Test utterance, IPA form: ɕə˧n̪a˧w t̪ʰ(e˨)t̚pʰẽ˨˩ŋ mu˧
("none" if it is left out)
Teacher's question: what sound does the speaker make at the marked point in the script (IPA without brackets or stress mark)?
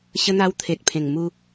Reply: e˨